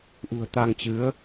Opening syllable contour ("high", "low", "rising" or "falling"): low